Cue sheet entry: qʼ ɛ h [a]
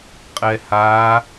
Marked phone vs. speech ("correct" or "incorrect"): correct